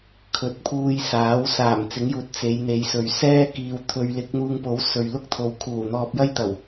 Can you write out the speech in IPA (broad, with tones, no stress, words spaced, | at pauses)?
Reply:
kʰɵ˨˥t̚pʰuː˧j saː˨˥wsaː˨˩m t͡sɪ˨˥ŋjuː˨t̚ t͡se˨˧jn̪e˨˧jsɵ˨˧ɥ sɛː˥ kiː˨w t̪ʰɵ˨˧ɥlɪ˨˥k̚n̪uː˧ŋpo˨˥w sɵ˨ɥlʊ˥k̚t̪ʰo˨˧w kʰuː˨˩n̪ɔː˧p̚jɐ˥jt̪ɐ˨˩w